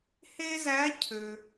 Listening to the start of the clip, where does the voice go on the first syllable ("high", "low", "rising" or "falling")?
high